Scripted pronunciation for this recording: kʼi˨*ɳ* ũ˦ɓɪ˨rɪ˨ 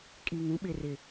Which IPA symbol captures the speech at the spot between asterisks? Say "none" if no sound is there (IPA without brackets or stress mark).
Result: ŋ